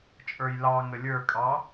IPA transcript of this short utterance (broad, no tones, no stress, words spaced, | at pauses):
t͡ʃʼə˞jlɑŋə lʲə˞kʼɑ